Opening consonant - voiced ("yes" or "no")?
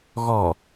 yes